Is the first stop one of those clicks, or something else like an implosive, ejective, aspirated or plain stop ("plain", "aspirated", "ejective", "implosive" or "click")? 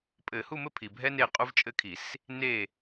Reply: ejective